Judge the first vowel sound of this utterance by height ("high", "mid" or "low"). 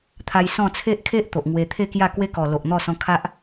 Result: low